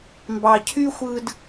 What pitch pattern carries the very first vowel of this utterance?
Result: low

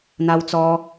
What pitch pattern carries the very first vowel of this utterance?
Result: high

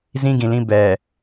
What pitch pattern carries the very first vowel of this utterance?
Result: high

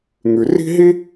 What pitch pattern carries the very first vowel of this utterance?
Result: low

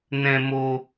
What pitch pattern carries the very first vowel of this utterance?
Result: high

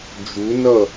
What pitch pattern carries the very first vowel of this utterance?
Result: rising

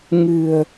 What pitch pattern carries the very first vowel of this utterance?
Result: low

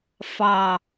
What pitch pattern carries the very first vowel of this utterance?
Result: falling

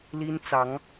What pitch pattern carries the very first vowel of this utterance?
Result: high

